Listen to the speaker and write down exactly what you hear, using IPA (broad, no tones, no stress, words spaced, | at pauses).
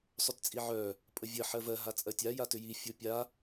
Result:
sˤʏtt͡sʼiʕœ | pʼəvʲə ħɜvɜ ɦat͡sʼɜtʲa jatʏji fʲopʲa